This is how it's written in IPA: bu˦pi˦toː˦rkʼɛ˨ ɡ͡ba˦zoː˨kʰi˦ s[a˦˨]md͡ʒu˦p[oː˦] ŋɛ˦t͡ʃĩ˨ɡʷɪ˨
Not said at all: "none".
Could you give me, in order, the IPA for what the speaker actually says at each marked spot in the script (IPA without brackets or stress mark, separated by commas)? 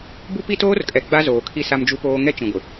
a˦, oː˦